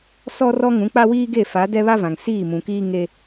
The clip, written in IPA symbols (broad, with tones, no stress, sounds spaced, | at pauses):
s ɔ˦ r ɔ˦ ŋ ũ˨˦ k͡p a˦ w iː˦ ɡ e˦˨ f a˨˦ d ɛ˦ β a˦ v ã˨ ŋ s iː˦˨ m ũ˨ k iː˦ ŋ e˦